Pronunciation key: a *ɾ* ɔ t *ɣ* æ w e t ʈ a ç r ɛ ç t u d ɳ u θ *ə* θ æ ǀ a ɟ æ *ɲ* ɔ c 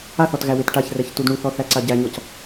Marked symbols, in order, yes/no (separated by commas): no, yes, no, yes